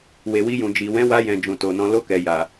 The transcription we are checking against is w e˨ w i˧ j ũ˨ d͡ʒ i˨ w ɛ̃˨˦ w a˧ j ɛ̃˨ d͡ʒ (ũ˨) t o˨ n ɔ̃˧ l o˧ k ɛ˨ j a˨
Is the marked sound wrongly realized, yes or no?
no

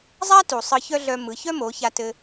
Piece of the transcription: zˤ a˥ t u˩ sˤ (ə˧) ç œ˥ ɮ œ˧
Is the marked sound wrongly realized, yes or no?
yes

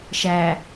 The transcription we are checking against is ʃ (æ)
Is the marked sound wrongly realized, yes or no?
no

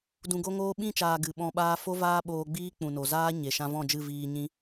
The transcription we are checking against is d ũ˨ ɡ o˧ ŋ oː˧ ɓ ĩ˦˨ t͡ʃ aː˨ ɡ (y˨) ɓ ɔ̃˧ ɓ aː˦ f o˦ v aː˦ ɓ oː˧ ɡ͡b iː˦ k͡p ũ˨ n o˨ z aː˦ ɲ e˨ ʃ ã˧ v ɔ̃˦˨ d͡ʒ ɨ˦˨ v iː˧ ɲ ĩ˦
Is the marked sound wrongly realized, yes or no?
yes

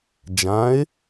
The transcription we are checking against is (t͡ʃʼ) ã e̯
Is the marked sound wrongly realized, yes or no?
yes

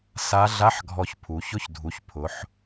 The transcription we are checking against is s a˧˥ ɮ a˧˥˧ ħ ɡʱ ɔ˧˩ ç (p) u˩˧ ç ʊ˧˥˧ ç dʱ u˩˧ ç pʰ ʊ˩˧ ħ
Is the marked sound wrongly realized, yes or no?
yes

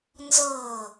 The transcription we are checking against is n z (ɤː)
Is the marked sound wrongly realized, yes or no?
no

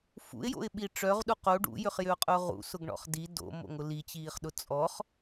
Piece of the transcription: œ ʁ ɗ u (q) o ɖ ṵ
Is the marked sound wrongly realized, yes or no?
no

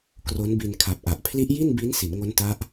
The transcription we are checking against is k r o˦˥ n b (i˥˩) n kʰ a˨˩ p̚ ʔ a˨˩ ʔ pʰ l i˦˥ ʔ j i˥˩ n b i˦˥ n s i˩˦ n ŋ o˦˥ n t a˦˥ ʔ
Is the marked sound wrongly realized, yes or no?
yes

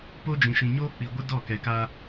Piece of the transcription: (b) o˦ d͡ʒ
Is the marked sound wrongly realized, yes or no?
yes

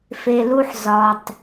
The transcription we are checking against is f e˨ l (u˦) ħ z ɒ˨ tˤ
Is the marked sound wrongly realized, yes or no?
no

